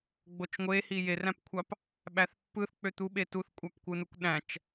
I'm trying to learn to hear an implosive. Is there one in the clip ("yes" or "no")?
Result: yes